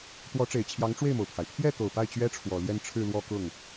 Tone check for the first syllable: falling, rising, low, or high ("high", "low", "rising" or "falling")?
rising